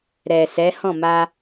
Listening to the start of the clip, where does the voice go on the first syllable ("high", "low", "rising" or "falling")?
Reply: low